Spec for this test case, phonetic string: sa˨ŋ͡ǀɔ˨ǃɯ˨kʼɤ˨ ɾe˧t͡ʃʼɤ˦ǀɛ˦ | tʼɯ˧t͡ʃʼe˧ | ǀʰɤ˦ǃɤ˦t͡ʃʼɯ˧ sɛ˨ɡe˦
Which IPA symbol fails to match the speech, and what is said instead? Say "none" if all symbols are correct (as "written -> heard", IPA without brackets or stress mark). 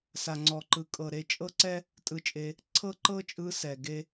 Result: none